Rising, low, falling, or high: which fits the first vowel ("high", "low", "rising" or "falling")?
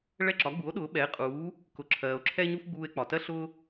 falling